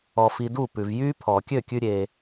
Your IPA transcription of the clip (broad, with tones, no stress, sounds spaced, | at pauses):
ɔ˧ f i˧ d u˥˩ p ʉ˩ v j yː˥ pʰ ɔː˩ kʲ ø˥˩ kʲ ʉ˧ ɾʲ e˩